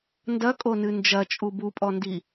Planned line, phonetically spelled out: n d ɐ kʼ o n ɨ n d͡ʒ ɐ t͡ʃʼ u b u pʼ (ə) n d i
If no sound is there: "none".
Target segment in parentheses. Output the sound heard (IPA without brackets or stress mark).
ɔ